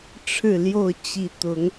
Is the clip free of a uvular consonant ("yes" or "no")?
yes